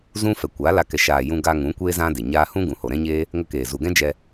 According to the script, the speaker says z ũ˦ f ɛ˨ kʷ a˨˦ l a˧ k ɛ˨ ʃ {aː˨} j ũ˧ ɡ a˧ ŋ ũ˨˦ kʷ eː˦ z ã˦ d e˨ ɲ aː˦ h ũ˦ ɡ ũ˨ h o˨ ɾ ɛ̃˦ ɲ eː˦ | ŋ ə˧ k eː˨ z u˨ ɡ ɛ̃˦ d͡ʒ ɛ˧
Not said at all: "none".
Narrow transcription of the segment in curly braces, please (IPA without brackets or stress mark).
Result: aː˨